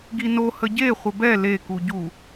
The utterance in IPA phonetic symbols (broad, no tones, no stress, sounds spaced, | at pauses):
ɡ i n o h ə ɟ e χʷ ə b ɛ l e k u ɟ u